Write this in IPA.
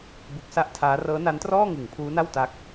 b u˦˥ k̚ s a˥˩ ʔ tʰ aː˦˥ r ɤː˦˥ n a˦˥ n t r ɔː˥˩ ŋ ɯ˨˩ ŋ pʰ uː˦˥ n a˥˩ w t a˦˥ k̚

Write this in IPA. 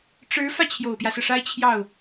ʈ͡ʂ ɻ̩˧˥ f ä˧ t͡ɕʰ j o˨˩ ʊ̯ p j ä˦ s ɤ˩ ʂ a˥ ɪ̯ t͡ɕʰ j ɑ˥˩ ʊ̯

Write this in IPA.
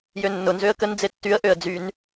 j ø nː ʊ n z ø ə̯ k ə n d͡z e tː y ə̯ ʔ ø ə̯ d͡z y n

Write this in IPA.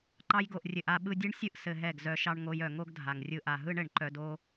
ǃ ɑ˧ j ɡ o˨ ʔ rʲ ɘ˨ ʔ a˧ ɓ ɯ˧ dʲ ɯ˦ ɳ sʲ ɯ˦ ʔ s ɘ˧ ɦ ɛ˦˨ ɡ z œ˧ ʃ ɑ˦ ɳ ŋ o˧ j œ˨ ŋ o˦ ɡ dʱ a˨ ŋ rʲ ɯ˧ ʔ a˨ ɦ ɯ˦ ɳ ɘ˨ ɳ ǃ œ˧ d o˦

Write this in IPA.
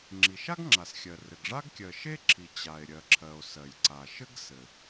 ŋ͡ǁ i˩ ʃ a˥ ɡ ŋ͡ǁ a˩ s xʲ ɜ˩ r ɘ˩ ɡ ʐ a˥ ɡ kʲ ɜ˩ ʃ e˥ ǁʰ i˩ t͡ɕ a˩ e̯ ɾʲ ɜ˩ ǁʰ ɜ˩ o̯ s ɜ˩ j ǀ a˩ ʃ ɘ˥ ɡ s ɘ˩

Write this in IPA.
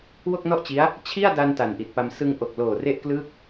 w o˥˩ k̚ n ɔ˥˩ ʔ t͡ɕ i˦˥ a̯ | t͡ɕʰ i˥˩ a̯ d a˧ n t a˨˩ n ʔ i˨˩ t̚ p a˧ m s ɯ˧ ŋ ʔ o˨˩ k̚ l oː˨˩ r e˥˩ ʔ k l ɯː˥˩ k̚

